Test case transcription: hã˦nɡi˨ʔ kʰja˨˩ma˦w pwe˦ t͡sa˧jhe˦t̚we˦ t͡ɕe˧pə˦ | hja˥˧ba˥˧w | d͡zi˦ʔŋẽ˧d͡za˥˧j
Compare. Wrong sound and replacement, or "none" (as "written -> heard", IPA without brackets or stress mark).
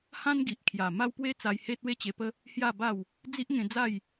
none